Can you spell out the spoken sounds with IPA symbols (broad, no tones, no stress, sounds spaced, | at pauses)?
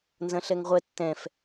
n z ɐ̃ ɬ ɛ ŋ ʁʷ ɛ tː ɛ̃ f